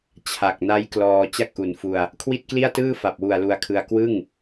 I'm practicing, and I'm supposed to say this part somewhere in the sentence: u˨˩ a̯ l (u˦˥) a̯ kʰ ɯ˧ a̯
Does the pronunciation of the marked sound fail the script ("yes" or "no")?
yes